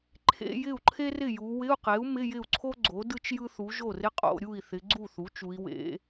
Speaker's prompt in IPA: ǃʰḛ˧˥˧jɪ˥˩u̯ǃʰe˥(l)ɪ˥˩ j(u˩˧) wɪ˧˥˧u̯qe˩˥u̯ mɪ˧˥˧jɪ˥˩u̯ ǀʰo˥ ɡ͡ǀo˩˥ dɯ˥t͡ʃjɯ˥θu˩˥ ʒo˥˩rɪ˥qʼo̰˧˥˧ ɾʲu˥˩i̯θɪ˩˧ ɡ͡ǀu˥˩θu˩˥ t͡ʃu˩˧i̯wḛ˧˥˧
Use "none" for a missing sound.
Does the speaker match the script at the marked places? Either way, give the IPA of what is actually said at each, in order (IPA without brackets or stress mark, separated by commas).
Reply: r, u˩˧